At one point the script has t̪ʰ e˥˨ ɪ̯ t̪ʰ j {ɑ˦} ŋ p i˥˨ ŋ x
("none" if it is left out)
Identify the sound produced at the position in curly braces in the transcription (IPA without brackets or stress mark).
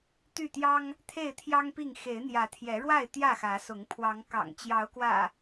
ɑ˦